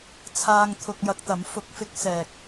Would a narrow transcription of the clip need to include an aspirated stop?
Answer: yes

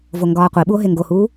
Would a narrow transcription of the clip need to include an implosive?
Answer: yes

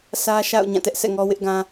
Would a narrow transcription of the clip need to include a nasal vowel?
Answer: yes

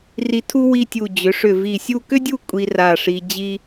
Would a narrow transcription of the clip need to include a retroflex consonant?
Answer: yes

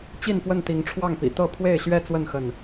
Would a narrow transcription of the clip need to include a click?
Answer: no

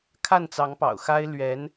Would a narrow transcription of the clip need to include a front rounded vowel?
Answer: no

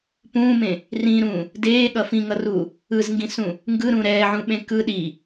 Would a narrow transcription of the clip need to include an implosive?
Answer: yes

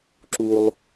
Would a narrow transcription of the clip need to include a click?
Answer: yes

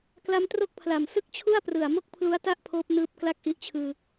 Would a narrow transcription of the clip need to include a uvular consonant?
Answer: no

